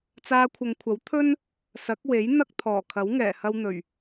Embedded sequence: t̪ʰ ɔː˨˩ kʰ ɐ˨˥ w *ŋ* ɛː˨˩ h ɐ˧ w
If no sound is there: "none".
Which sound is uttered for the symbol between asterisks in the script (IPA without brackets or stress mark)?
ŋ